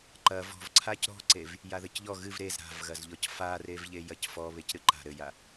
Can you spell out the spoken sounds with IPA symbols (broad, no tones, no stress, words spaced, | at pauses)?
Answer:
ǃɐ vɔ̤v ǀʰacɾɔ̤ǀev | jaðɘcʎɔ ɣɨv ɾez ɾa̤vɣɐzʎɔc farevʎe jɐcfɔβec ɾɨǃa̤ ɾɘja